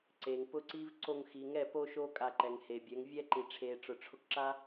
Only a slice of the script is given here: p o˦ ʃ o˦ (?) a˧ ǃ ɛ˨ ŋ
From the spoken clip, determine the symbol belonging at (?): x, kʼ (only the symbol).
kʼ